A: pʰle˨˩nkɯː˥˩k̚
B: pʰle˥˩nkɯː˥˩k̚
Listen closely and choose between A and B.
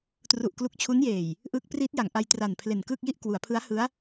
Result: A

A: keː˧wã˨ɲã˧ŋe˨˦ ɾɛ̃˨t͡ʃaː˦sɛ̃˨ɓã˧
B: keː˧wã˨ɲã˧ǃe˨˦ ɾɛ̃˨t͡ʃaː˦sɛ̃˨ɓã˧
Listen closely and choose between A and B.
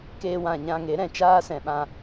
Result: A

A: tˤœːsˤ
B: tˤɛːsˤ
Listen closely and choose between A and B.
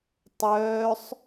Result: A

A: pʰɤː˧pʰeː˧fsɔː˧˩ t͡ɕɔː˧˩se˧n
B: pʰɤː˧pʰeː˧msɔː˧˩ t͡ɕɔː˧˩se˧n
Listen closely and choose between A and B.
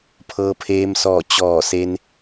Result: B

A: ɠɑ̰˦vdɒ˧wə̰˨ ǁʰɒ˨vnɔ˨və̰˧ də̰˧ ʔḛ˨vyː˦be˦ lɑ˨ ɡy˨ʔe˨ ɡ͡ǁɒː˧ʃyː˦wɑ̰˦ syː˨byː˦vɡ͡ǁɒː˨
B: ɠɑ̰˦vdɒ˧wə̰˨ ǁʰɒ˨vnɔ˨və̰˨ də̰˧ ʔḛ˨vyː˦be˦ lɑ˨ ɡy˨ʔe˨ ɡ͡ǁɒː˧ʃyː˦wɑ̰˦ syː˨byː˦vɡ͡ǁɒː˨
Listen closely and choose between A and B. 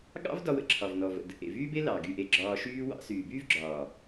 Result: B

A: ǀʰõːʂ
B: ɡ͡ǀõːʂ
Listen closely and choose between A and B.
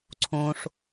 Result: A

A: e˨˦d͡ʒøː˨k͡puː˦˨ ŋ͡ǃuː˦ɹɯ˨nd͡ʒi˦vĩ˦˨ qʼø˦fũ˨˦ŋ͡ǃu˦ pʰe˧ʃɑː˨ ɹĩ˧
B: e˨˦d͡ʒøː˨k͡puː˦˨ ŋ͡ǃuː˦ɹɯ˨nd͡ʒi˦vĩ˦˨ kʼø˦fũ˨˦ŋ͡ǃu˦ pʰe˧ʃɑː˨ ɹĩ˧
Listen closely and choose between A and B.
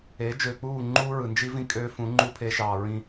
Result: B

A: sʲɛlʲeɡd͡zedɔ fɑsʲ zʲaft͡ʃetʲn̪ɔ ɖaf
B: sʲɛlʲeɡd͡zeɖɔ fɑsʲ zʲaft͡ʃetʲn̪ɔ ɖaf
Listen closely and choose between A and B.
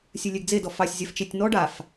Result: A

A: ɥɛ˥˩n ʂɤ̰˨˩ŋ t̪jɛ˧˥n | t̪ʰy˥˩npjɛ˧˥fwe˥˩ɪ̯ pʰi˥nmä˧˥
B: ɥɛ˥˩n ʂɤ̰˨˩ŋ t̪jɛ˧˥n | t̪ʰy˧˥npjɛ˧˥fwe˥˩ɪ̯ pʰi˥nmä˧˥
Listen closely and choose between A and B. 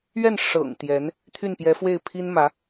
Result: A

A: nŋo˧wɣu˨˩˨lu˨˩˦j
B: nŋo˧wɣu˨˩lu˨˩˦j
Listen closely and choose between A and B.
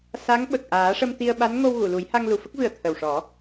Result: A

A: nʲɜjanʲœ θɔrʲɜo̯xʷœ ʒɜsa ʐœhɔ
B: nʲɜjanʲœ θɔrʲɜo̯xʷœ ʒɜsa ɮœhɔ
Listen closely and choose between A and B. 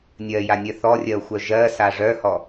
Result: A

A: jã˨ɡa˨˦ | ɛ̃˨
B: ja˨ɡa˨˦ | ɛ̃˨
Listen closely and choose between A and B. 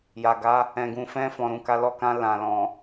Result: B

